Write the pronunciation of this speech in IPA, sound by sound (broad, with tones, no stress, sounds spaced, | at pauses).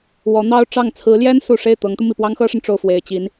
w ɔ˧˥ n̪ ɑ˥ ʊ̯ ʈ͡ʂ ɑ˥˩ ŋ t͡sʰ ɹ̩˧˥ l j ɛ˥ n s u˨˩ ʂ e˥˩ ɪ̯ t̪ ɤ˧˥ ŋ t̪ u˧ m i˥˩ p w ɑ˥ ŋ x ɤ˥ ʂ ə˨ n ʈ͡ʂ o˥˩ ʊ̯ f w e˨˩ ɪ̯ t͡ɕ i˧˥ n